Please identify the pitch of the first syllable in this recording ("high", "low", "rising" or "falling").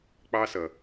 high